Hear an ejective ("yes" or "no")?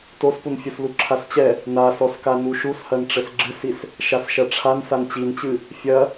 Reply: no